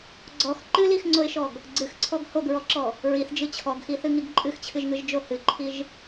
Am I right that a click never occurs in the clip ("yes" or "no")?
no